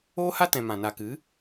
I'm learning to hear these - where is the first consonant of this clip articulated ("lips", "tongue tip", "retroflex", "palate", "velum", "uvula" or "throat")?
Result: throat